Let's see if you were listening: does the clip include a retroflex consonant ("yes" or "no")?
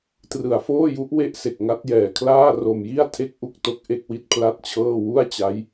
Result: no